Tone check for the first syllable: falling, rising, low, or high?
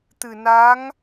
low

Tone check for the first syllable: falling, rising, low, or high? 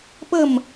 falling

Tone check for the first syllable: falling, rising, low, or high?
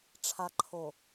low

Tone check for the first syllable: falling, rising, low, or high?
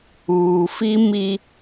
low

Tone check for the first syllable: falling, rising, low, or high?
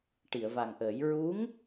low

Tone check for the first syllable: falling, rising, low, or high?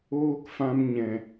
high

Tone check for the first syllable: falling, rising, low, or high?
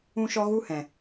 high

